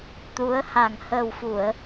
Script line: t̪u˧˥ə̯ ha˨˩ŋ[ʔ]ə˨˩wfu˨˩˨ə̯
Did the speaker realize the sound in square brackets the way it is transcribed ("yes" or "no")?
no